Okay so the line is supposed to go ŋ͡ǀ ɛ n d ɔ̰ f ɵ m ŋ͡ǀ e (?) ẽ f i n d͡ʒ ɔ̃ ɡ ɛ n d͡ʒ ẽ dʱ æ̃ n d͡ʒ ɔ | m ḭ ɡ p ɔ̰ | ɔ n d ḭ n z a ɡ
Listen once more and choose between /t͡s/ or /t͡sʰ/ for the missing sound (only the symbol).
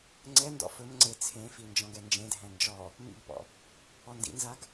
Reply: t͡sʰ